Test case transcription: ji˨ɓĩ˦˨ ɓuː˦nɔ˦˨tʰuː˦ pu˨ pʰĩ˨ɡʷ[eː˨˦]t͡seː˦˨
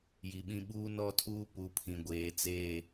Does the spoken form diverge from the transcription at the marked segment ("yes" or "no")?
no